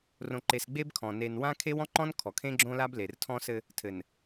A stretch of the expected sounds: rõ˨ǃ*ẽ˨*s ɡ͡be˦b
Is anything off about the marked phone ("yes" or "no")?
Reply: yes